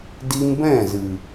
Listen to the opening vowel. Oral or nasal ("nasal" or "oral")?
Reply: oral